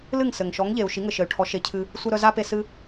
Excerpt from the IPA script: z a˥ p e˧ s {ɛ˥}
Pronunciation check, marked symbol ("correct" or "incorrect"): incorrect